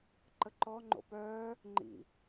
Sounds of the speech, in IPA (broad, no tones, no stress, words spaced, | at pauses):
ǃəǃɔ ŋ͡ǃo̰pœː | ŋ͡ǃḭ